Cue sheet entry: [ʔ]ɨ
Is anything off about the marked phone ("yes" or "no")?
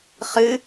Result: yes